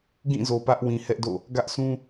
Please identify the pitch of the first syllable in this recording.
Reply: falling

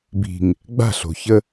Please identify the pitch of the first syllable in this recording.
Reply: low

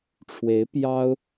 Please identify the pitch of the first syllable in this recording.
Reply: rising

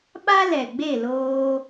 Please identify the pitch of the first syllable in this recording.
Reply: high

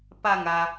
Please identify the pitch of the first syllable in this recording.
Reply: falling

